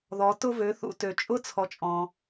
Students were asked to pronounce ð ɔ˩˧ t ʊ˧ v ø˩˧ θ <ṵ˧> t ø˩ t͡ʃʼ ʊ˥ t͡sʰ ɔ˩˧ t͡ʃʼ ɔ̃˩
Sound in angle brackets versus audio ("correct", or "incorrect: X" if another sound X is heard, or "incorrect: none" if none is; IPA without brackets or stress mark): correct